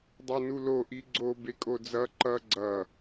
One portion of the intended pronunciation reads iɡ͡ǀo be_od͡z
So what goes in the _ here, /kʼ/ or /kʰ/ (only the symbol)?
kʼ